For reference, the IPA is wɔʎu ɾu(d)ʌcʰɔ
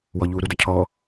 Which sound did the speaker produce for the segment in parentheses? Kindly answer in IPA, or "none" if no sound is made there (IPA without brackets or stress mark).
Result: d